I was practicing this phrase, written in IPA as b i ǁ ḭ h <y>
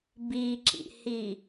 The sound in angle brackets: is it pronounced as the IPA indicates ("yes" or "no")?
no